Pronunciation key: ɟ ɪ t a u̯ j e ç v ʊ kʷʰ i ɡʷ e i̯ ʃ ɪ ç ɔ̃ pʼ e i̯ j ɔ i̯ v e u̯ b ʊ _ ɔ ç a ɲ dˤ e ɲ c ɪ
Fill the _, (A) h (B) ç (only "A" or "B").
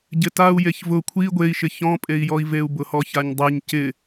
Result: A